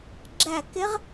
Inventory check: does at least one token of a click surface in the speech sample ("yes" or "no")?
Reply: yes